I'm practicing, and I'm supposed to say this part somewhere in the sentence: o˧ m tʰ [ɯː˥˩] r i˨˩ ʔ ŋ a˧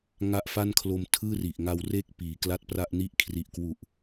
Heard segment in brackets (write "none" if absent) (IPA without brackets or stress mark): ɯː˥˩